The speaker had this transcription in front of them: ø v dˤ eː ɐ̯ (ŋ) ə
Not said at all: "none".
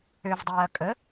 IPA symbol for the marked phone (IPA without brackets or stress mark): kʼ